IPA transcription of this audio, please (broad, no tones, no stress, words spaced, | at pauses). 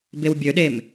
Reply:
bewbʲøɗem